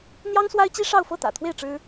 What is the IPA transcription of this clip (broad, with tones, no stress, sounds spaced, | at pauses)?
n̪ j ɑ˥ ŋ s w a˥ ɪ̯ t͡ɕ i˥ ʂ ɑ˥˧ ʊ̯ f ɤ˥˩ t̪ ä̰˨˩ t̪ʰ w e˥˩ ɪ̯ ʈ͡ʂ ɻ̩˥